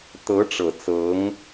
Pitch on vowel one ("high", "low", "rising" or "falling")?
rising